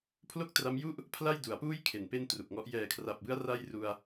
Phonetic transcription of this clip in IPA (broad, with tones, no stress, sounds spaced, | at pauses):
pʰ l o˥˩ k̚ t r a˦˥ m j u˥˩ ʔ | pʰ l a˥˩ j d u˩˦ a̯ p uː˥˩ j kʰ e˨˩ n p e˥˩ n t r u˨˩ k̚ ŋ ɔ˦˥ ʔ j ɛː˨˩ kʰ r a˨˩ p̚ b ɯ˦˥ a̯ r a˥˩ j r u˧ a̯